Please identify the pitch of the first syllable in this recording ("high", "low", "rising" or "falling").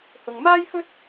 low